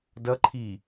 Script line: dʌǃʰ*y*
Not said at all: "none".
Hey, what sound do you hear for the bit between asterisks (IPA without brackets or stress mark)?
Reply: i